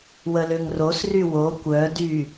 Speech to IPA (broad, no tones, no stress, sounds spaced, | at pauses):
w ə l ø ŋ r o s r y w o kʷ œ d y